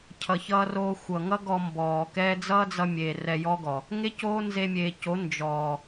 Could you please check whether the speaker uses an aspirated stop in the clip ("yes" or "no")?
yes